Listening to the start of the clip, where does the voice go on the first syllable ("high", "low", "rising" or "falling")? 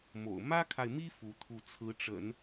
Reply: low